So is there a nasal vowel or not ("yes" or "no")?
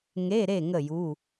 no